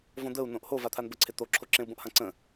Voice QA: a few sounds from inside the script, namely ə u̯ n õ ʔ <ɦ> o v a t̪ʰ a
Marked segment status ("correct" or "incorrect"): incorrect